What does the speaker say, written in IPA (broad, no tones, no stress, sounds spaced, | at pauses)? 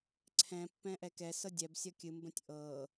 ǀʰ ɛ̃ pː ɛ̃ ʔ ɛ k ɛ s ɤ dʲ ɛ b sʲ ʌ kʲ ɨ m b ə̃ tʲ ʔ ɤ